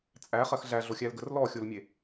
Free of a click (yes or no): yes